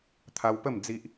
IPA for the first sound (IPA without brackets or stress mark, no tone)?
t̪ʰ